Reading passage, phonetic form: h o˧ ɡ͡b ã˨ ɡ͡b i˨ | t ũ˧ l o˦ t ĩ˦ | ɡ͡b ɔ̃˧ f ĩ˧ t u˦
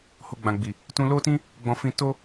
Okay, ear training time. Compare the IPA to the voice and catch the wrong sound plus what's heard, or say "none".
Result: u˦ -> o˦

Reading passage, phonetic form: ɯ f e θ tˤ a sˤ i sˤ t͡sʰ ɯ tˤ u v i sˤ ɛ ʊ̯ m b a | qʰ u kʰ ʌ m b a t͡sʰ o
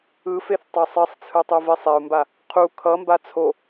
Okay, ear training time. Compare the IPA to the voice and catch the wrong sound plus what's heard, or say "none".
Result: none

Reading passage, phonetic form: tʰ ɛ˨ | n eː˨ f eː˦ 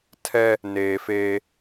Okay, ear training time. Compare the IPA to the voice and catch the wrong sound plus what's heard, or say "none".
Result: ɛ˨ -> ɛ˦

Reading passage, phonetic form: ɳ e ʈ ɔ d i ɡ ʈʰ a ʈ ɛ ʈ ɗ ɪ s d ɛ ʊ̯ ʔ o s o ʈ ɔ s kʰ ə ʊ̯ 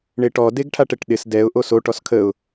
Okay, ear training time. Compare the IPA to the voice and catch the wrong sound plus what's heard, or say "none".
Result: i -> e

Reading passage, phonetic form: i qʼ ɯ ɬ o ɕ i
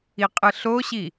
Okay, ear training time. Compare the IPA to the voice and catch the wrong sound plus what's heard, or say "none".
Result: none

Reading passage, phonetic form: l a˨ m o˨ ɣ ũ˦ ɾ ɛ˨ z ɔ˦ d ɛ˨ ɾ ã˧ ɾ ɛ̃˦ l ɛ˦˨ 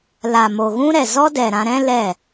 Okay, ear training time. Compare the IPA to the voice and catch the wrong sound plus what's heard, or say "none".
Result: none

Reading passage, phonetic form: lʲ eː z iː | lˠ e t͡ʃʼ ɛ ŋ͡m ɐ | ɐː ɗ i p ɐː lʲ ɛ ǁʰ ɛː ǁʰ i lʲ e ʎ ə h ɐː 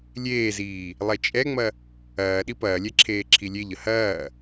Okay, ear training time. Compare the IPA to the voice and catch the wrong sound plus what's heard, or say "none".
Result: ɛː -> eː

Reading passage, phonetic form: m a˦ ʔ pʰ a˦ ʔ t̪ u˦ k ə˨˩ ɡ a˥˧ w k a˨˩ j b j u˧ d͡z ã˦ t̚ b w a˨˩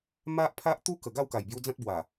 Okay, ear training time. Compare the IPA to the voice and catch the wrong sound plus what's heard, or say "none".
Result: none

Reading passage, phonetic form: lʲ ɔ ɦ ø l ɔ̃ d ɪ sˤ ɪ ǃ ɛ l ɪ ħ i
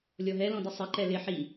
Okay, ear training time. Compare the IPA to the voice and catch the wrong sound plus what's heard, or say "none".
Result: ø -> ɛ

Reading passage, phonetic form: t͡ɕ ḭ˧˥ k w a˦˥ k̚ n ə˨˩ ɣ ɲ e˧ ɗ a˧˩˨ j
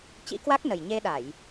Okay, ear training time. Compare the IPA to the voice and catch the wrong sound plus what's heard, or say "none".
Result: ɣ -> j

